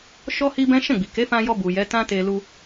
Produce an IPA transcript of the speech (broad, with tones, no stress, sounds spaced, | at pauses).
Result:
ʃ ɔ˦ h i˦ b ɛ̃˦ ʃ ɛ̃˦˨ ɡ͡b i˨ k e˨˦ f ã˧ j ɔ˧ b u˨ j ɛ˨˦ t ã˦ t e˧ l u˧